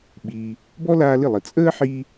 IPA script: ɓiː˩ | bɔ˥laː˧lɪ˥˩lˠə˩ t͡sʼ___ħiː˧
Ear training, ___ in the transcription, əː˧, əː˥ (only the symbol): əː˥